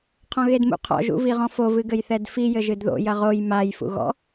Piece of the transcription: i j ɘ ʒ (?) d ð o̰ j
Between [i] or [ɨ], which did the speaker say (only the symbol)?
ɨ